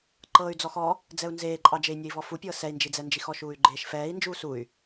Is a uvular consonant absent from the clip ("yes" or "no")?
yes